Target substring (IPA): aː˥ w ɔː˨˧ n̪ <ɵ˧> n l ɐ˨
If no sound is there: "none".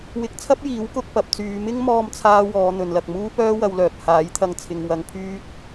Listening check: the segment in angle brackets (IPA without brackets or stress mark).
ɵ˨